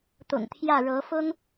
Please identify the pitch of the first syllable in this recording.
low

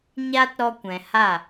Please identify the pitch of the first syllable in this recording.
high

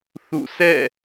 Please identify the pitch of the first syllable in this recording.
falling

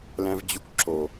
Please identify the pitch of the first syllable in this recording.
high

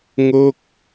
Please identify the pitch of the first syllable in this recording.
falling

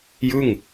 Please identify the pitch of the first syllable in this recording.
falling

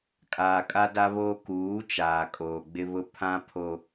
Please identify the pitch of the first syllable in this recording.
low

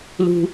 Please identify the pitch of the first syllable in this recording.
high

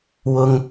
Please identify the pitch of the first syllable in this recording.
low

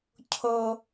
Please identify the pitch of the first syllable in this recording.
high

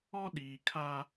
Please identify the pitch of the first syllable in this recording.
high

